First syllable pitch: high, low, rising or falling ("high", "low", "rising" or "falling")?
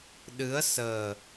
rising